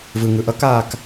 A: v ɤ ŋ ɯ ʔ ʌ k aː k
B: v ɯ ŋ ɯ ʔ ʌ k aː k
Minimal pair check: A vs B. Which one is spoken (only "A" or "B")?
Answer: B